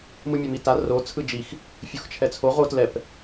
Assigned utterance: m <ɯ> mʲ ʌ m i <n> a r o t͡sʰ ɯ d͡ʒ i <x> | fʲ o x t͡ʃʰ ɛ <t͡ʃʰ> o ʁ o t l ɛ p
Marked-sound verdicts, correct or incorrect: correct, incorrect, correct, incorrect

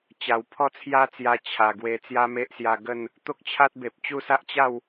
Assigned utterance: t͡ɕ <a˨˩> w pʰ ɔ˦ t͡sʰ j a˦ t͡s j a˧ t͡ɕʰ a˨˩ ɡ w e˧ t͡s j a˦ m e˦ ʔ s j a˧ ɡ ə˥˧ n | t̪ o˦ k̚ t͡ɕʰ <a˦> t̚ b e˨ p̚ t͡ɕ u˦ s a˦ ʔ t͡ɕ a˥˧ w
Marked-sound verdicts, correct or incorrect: correct, correct

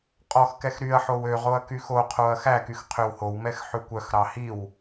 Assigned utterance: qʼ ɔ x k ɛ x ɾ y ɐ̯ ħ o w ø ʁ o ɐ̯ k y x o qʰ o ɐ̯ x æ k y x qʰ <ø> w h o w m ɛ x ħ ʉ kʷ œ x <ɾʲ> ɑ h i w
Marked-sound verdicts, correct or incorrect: correct, incorrect

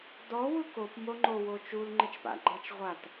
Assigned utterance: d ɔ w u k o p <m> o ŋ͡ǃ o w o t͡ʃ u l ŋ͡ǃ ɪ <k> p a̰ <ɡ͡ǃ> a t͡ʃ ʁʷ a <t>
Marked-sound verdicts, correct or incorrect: correct, incorrect, correct, correct

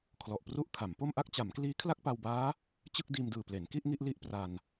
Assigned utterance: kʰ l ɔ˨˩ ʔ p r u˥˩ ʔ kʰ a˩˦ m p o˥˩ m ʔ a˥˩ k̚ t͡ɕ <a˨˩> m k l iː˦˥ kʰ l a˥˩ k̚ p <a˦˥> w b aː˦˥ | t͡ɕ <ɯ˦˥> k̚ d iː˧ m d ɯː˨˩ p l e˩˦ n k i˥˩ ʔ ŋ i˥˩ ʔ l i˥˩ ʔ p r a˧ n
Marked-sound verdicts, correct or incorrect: incorrect, incorrect, incorrect

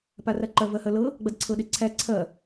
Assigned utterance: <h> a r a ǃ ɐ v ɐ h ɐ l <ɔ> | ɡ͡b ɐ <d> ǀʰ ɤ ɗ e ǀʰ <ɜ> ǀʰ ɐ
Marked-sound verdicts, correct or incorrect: incorrect, incorrect, correct, incorrect

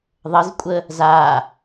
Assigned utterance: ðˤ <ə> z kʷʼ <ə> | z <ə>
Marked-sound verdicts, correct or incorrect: correct, correct, incorrect

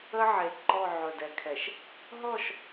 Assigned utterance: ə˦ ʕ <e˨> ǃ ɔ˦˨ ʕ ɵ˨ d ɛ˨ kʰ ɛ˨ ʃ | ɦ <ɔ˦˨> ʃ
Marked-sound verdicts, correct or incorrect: correct, correct

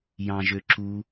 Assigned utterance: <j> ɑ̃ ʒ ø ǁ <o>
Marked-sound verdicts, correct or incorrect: correct, incorrect

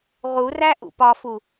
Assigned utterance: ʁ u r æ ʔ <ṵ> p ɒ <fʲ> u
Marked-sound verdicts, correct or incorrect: correct, incorrect

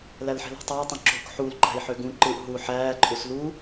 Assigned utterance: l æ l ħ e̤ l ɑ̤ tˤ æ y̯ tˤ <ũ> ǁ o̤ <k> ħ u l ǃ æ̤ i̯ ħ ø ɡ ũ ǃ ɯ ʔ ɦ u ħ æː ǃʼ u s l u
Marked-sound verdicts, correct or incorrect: correct, correct

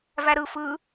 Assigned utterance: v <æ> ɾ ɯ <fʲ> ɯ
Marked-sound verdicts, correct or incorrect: correct, incorrect

